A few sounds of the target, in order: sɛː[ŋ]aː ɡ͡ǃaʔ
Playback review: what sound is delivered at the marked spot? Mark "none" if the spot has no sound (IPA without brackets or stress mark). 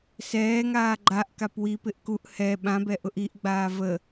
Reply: ŋ